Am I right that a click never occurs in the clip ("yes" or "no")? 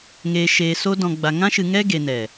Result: yes